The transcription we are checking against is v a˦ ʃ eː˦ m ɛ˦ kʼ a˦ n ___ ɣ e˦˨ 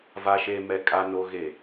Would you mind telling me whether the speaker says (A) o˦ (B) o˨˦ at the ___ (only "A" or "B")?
A